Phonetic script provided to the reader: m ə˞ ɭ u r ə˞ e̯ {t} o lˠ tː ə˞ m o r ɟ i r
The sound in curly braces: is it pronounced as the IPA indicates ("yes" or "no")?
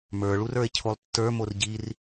no